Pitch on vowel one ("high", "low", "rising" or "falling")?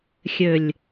low